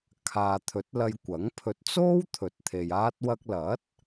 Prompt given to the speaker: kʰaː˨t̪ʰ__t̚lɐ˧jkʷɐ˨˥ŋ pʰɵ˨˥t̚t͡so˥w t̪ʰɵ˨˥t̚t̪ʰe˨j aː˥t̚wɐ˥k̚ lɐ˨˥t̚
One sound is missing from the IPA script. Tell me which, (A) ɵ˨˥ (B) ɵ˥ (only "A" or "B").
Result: A